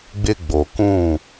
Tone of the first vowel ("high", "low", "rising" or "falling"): high